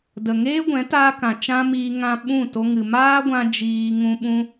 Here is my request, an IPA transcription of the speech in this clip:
d ə˨ ŋ eː˦ ɡʷ ɛ̃˨˦ t aː˧ k ã˨ t͡ʃ ã˦ m iː˧ ŋ ã˧ ɓ ũ˦˨ t o˧ ŋ ɨ˨ m aː˦ ɡʷ ã˧ d͡ʒ iː˧ ŋ ũ˦ ɓ ũ˦

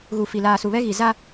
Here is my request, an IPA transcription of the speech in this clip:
ɣ u˨ f i˨ l aː˨ s u˨ β ɛ˦ ɣ i˨ z a˦

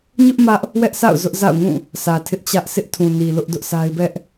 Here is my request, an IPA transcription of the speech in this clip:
ɲ ʊ˦ ʔ m ä˦ ʔ | w ɛ˦ ʔ s a̰˦˨ ʊ̯ z ʊ˦ ʔ z a̰˦˨ ʊ̯ ŋ ũ˦˨ | sʰ ä˨ tʰ ɪ˦ ʔ t͡ɕ ä˦ ʔ s ɪ˦ ʔ tʰ ũ˨ n i˨ l ʊ˦ ʔ d ʊ˦ ʔ sʰ a˦ ɪ̯ b ɛ˦ ʔ

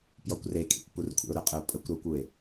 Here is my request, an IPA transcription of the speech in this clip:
p j ɔ kʷ r e kʼ ḭ kʷ p u r kʷʰ ḛ ʊ̯ ɾ ə qʼ ə ʊ̯ pʼ ə kʷ ɾ ɔ kʷ u ɪ̯

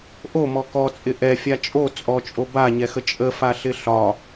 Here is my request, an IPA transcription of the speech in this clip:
ʔ o m ɔ k ɔ t͡sʼ ɪ ʔ ɛ fʲ a t͡ʃʼ o t͡sʼ ɔ t͡ʃʼ o b a ɲ ɛ x ə t͡ʃʼ ə f a ɬ ɪ ɬ ɒ

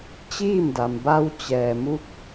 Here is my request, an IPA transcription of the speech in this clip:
t͡ɕ iː˥˨ m d a˩ m b a˧ w t͡ɕ ɛː˩ m u˧ k̚

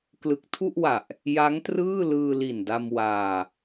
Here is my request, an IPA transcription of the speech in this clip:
k l ɯ˨˩ k̚ tʰ u˥˩ ʔ w a˨˩ ʔ | j a˦˥ ŋ t r ɯː˥˩ l ɯː˧ l i˨˩ n d a˧ m w aː˧

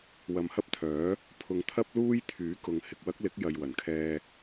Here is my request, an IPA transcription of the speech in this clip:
w ɐ˨ m h ɐ˥ p̚ t̪ʰ œː˨˥ | pʰ ʊ˨ ŋ t̪ʰ ɐ˥ p̚ l uː˥ j t̪ʰ yː˨˥ k ʊ˨˧ ŋ h ɪ˨ k̚ w ɐ˥ k̚ l ɪ˨˥ k̚ j ɐ˨ j w ɐ˨˩ n kʰ ɛː˧

